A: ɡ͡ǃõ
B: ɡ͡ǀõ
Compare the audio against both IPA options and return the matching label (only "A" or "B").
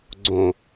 B